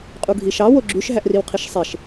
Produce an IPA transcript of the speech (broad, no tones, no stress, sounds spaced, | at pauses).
qʼ u ɡʱ i ʃ ɑ w o ɡ͡ǁ y ʃ ɦ æ ʔ r i w qʰ i ʃ sˤ e ʃ